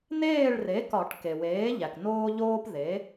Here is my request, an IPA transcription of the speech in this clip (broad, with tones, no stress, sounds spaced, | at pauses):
n eː˥˨ ɭ r e˩˥ k ɒ˨˩˦ ʈ k e˩ w eː˩˥ ʎ æ˩ k n oː˦ ʎ oː˦ p ð e˩˥